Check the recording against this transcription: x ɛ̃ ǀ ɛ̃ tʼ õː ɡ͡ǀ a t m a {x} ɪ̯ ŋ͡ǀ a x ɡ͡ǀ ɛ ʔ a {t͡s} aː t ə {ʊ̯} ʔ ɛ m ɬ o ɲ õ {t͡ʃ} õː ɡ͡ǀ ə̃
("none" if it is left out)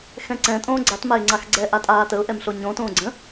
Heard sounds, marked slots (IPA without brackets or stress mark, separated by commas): none, tʼ, ʊ̯, t